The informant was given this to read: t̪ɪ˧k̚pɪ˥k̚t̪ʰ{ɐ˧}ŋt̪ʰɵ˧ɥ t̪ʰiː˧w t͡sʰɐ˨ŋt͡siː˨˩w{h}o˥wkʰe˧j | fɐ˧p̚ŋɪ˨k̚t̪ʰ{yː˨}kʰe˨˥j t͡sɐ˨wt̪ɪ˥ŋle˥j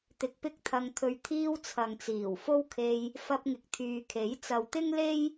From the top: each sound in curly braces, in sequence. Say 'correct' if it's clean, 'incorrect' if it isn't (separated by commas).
correct, incorrect, correct